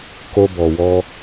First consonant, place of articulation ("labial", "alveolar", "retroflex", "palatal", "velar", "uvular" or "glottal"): velar